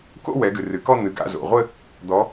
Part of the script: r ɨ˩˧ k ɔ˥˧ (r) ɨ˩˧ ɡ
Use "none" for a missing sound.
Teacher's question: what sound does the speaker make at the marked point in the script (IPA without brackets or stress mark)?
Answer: n̪